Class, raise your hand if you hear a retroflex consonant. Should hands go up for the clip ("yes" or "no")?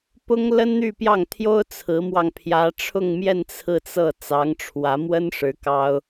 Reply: yes